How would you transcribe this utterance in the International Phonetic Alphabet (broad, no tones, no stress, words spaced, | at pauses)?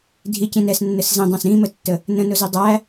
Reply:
dʱicĩ nɛsnːəs zĩdˤɑ̃s ɾĩmətːə | nə̃nʊzi dˤæ